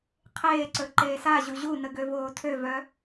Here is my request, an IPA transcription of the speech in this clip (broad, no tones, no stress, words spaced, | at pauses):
qʰeːǀɵ ǃeːsaʑu ʑunə ɡøvoːtʰøvœ